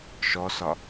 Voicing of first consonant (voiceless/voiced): voiceless